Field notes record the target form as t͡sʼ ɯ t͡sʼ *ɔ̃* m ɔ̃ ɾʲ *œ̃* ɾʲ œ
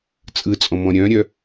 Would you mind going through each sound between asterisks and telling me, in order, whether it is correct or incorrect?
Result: correct, correct

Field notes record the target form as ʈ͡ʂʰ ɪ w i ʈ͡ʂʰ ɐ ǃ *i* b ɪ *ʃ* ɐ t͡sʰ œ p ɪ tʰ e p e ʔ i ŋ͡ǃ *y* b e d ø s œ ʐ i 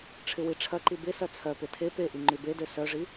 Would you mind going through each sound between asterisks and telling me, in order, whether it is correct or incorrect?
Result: correct, incorrect, correct

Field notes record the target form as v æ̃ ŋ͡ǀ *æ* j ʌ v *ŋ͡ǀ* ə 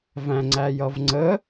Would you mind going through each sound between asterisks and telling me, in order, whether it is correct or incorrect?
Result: correct, correct

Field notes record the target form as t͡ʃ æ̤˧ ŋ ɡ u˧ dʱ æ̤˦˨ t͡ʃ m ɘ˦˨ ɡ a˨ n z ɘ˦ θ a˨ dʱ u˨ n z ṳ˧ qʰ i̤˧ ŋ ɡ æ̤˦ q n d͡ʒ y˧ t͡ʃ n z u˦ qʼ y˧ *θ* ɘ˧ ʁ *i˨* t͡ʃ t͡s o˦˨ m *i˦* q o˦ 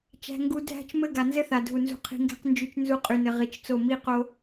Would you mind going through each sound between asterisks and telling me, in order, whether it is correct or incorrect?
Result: incorrect, correct, correct

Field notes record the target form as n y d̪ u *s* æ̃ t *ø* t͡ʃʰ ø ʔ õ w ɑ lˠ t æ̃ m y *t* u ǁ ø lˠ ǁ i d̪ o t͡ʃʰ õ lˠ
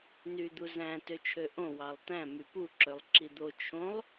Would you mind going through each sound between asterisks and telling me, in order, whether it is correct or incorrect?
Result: incorrect, correct, incorrect

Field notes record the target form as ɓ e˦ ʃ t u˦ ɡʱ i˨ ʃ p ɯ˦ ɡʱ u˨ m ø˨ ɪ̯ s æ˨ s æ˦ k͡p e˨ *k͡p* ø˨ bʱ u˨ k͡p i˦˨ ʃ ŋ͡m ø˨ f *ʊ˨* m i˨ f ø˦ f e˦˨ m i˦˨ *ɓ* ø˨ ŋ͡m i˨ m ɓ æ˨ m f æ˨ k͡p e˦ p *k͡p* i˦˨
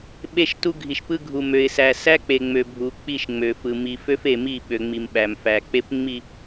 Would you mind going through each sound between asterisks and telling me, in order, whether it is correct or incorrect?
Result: incorrect, incorrect, correct, incorrect

